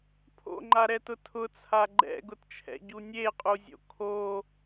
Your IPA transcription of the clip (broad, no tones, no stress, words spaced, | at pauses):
pʰo̰ŋ͡ǃaɾɛtʊ tʰʊt͡sʰa ɡ͡ǃɛ̰ɡʊtt͡ʃʰɛ̰ɟu nʲeqʼuzʲo̰ kʰo